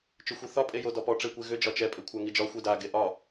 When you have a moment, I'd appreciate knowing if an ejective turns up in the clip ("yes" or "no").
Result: yes